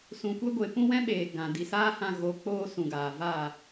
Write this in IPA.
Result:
s ũ˨ kʷ e˦ ɡʷ e˨ p ũ˦ w ɛ̃˦ ɓ eː˨ ɡ ã˨ d i˨ s aː˦ h ã˧ ɣ o˧ k͡p oː˦ s ũ˨ ɡ aː˨ v a˦˨

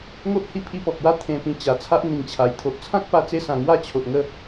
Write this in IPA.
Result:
ŋ o˦ ʔ h i˦ pʰ i˧ p ɔ˨ k̚ w a˦ t̪ʰ ẽ˧ p ĩ˧ t͡ɕ a˨˩ t͡sʰ a˦ ʔ n̪ ĩ˨˩ ŋ t͡ɕʰ a˨˩ j t̪ʰ o˨ ʔ t͡sʰ ã˦ k̚ p a˧ t͡s e˧ s ã˨˩ ŋ w a˥˧ t͡ɕʰ o˨ ʔ ŋ ə˥˧

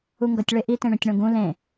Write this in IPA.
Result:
u ŋ ɡ ʌ tʲ ɭ e ʔ i t ẽ ɳ ũ tʲ ɳ õ ɡ ũ l ẽ

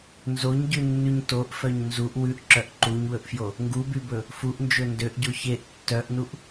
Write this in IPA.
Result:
n z o ɲ ɟ ʉ nː ʉ ɲ t o ʔ f œ ɲ n z u ʔ w ʉ ʔ ǁ œ ʔ ǃ u ɲ w ɵ ʔ f j o | ŋ ɡ u b y b ɵ | f u ʔ n d͡ʒ ɵ n d ø ʔ ɟ o ç e ʔ tː œ ʔ n u ʔ

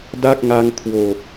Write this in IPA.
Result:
d a˥˩ k̚ ŋ a˧ ŋ kʰ w o˨˩ k̚

